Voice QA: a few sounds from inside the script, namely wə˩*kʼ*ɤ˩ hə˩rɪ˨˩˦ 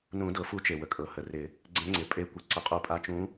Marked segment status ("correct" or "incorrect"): correct